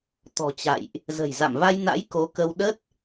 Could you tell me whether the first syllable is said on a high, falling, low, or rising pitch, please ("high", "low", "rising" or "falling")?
low